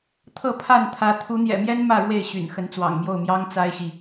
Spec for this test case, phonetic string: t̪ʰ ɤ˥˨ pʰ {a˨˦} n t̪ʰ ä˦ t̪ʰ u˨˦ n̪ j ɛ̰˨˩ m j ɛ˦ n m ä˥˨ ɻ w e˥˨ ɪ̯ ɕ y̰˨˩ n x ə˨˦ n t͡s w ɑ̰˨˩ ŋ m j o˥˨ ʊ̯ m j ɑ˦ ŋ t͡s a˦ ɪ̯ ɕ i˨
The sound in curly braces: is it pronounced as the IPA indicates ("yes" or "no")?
no